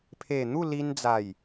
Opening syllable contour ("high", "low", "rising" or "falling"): low